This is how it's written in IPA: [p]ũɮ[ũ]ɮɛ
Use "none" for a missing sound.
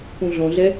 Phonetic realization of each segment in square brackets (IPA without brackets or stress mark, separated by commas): p, õ